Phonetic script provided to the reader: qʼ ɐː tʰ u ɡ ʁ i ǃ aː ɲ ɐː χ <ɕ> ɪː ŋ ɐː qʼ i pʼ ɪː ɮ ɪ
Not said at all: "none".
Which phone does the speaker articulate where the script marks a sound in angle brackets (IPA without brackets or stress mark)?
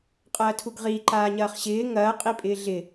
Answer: ɕ